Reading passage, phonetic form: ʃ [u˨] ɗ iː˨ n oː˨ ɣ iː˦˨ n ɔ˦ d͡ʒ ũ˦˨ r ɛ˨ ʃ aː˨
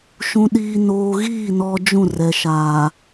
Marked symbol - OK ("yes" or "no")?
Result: no